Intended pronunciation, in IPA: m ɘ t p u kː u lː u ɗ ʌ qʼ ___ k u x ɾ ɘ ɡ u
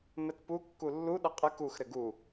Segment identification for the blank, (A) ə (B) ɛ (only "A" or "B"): A